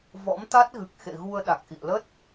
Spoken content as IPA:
v ɔ̰˧˥ m t̪ a˦˥ t̚ ɣ ɨ˨˩ k̚ x ḛ˧˨ ɣ u˧ ə̯ ɗ a˨˩ k̚ ʔ ḭ˧˨ ə̯ l ə˦˥ t̚

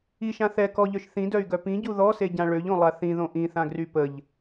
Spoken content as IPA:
i ʃ ã θ ɛ k ɔ ʎ œ ʃ θ ĩ d œ y̯ ɡ œ p ĩ ɟ u ð ɔ s e ɟ ã ɭ ø ʎ õ lˠ a θ ĩ ð õ ʔ ĩ θ ã ɡ r y p ə ʎ

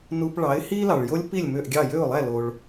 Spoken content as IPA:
n u˧ p ɭ ɑ˩˥ ɪ̯ h i˥ l ɑ˩ ɭ j o˥ lʲ p i˥˩ lʲ m ø˥˩ ʔ ɡʲ ɑ˥˩ j ø˥˩ ʊ̯ lˠ æ˥˩ l o˩ ɭ

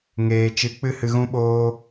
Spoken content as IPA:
ŋ eː˨ t͡ʃ ɨ˨˦ k͡p ɨ˦ h ɨ˧ ɣ ũ˦ ɓ oː˦

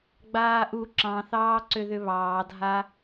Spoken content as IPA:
ɡ͡b aː ʔ u ǁ ɑ̃ θ ɑː ǀ ʏ ð ʏ β ɑː dʱ a

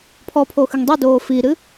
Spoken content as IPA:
pʰ ɔ pʰ o x ɨ ŋ dˤ i d oː f i ɾ ɨ

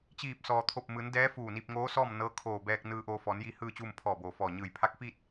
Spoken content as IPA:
t͡ɕ iː˧˩ p̚ s ɔː˩ t̪ʰ o˧˩ p̚ m ɯː˩˧ n d ɛː˧˥ f uː˧˩ n iː˧ p̚ ŋ oː˧˥ s ɔː˥˨ m n ɤː˧˥ kʰ oː˧˩ b ɛː˧ k̚ n ɯː˧ ʔ oː˧ f ɔː˩˧ n j iː˧ h ɯː˥˨ t͡ɕ uː˥˨ m pʰ ɔː˧˩ b oː˩ f ɔː˧˩ ɲ ɯː˧˩ j pʰ a˧˥ k̚ f iː˥˨ t̚

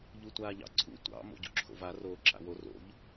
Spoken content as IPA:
ʎ u tʷ aː ʎ ɑ̰ ǀʰ ṵ tʷ ɑ̰ m o̰ ɟ ṵ ǁʰ o̰ v a r oː ǁ a̰ w o r o̰ ʎ

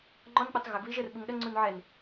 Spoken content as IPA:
ŋ͡ǃ ɔ n k͡p u tˤ ɣ ə ɡ β i ʒ ə r ɓ u ŋ ɗ ə ŋ͡ǀ u n ʕ ɛ n

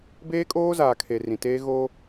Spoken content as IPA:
b eː˦ kʼ oː˦ z aː˨ kʰ e˨ r ĩ˨ t eː˦ ɣ o˦

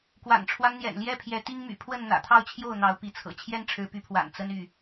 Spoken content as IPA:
k w a̰˨˩ n ʈ͡ʂʰ w a˦ n n̪ j ɛ̰˨˩ n l j ɛ˦ pʰ j ɛ˨˦ t̪ i˦ ŋ m y̰˨˩ pʰ w ə˥˨ n n̪ ä̰˨˩ t̪ʰ ɑ˥˨ ʊ̯ t͡ɕʰ j o˥˨ ʊ̯ n̪ ɑ˨˦ ʊ̯ p i˨˦ t͡sʰ ɤ̰˨˩ t͡ɕʰ j ɛ˦ n ʈ͡ʂʰ ɻ̩˨˦ p y˨˦ pʰ w a̰˨˩ n t͡s ə˦ n y˥˨

